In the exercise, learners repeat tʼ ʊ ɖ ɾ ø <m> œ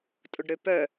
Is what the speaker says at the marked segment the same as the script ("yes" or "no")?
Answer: no